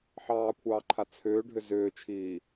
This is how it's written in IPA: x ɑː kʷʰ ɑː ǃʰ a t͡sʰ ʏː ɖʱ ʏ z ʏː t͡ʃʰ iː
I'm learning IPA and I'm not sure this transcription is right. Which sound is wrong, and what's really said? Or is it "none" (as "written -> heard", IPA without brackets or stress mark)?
x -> ħ